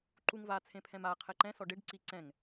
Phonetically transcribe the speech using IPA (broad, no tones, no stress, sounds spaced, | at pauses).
ǃ u ŋ v a t͡sʰ ẽ pʰ ɛ̃ m a qʰ ɛ ǃ ɛ̃ s ɔ ɖ e ɖ ǀ i ǀ ɛ̃ ŋ